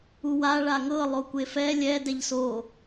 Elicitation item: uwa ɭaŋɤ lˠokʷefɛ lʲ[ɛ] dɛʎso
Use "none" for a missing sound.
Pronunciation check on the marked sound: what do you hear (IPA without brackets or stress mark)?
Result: ɛ